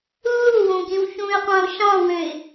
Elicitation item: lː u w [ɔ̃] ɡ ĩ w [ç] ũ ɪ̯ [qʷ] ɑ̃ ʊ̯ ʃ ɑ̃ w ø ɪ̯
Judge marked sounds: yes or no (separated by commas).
no, yes, yes